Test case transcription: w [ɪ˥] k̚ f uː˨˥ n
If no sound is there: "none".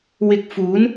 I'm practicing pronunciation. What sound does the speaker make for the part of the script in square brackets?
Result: ɪ˧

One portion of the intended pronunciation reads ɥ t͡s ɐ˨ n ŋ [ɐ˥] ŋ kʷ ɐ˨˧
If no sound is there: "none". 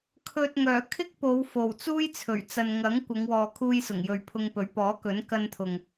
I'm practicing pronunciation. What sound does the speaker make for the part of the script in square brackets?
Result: ɐ˨˥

